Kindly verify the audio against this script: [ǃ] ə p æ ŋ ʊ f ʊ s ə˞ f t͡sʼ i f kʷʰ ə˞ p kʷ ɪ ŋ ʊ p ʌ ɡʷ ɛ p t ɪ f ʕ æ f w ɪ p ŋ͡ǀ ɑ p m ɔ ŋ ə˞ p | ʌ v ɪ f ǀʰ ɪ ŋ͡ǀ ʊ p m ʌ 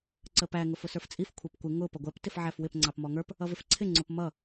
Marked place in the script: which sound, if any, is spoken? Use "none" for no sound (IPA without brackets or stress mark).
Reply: ǀ